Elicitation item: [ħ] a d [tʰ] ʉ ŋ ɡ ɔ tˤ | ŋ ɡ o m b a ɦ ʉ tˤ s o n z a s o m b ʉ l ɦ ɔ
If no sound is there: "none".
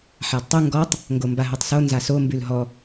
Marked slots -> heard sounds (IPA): ħ, tˤ

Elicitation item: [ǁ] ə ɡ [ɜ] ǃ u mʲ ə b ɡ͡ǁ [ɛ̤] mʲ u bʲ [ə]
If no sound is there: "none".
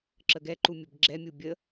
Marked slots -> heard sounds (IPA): ǁ, ɛ, ɛ, ə

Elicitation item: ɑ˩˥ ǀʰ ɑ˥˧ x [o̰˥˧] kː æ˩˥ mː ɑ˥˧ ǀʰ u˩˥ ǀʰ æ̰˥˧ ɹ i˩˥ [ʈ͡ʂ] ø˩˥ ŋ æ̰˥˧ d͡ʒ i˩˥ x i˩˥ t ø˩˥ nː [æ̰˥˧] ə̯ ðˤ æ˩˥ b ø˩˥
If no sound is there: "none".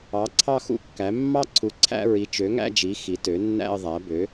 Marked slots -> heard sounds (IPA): ṵ˥˧, t͡ʃ, æ̰˥˧

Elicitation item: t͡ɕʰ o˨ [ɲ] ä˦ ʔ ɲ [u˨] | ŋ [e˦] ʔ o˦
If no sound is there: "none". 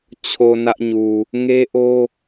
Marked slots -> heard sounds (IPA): n, u˨, e˦

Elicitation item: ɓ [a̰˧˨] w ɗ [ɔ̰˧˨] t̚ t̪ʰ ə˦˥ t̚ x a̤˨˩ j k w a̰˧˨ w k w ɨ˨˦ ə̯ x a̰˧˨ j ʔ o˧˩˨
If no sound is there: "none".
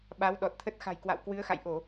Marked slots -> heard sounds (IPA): a˨˦, ɔ˨˩

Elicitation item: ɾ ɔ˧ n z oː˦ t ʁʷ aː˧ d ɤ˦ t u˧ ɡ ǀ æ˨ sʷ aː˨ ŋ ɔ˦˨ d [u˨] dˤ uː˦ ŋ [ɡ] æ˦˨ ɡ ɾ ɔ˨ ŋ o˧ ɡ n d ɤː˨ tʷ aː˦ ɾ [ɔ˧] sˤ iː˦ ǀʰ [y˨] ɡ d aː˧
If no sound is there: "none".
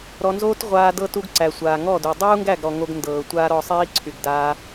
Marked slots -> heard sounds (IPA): u˨, ɡ, ɔ˧, y˨

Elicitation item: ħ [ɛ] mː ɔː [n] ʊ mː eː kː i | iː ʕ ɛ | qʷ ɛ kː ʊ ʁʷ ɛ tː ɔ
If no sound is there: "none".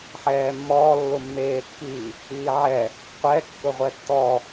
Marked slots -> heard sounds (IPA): ɛː, lː

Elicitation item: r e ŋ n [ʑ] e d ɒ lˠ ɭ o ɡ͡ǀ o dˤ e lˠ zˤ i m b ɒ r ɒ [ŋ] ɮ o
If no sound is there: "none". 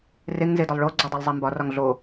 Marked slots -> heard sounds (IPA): z, ŋ

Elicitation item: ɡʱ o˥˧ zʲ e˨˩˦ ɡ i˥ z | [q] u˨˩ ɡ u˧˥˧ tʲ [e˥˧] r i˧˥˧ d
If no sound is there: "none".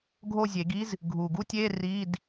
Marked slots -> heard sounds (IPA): ɡʱ, e˧˥˧

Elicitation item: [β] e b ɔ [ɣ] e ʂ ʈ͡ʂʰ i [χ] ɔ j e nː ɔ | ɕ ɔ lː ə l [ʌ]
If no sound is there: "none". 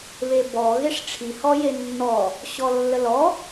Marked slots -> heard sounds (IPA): β, ɣ, h, ɔ

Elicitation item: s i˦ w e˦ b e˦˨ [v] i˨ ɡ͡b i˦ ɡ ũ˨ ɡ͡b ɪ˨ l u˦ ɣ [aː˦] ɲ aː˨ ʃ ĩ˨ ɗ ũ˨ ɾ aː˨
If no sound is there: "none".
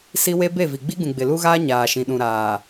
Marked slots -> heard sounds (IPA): v, aː˦

